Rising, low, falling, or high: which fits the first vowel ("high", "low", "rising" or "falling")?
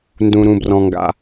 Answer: low